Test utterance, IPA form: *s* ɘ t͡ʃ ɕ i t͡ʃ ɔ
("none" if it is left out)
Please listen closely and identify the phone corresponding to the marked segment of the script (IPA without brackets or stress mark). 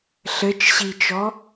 ɬ